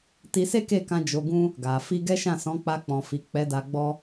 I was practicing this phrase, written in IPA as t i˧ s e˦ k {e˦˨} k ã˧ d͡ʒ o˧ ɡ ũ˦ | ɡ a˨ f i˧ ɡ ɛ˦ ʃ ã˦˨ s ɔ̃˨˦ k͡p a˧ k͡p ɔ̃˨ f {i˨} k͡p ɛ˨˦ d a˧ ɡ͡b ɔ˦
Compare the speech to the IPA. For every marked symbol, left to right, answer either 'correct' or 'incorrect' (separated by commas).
correct, correct